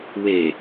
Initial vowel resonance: oral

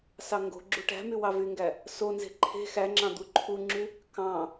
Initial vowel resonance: oral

